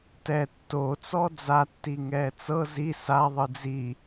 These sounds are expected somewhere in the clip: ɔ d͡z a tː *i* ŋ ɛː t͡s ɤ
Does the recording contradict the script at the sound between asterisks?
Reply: no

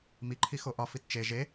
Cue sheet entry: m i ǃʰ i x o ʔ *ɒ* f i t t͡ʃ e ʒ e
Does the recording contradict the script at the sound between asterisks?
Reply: no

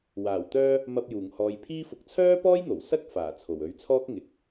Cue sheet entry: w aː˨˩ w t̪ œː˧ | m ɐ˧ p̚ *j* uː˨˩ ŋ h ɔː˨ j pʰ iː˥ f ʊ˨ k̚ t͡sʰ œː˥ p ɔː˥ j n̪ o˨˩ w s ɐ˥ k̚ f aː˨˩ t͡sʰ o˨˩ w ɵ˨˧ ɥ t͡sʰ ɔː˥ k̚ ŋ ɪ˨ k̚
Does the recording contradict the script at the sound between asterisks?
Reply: no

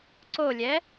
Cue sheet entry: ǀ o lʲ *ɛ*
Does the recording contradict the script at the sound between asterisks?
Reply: no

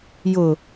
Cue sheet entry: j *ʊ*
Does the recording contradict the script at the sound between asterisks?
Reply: no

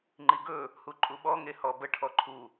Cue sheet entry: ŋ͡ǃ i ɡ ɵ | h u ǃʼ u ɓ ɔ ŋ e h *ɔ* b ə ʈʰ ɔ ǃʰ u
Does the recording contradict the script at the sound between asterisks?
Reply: no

